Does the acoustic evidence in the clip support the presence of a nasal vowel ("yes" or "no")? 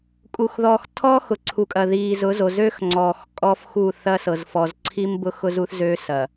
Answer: no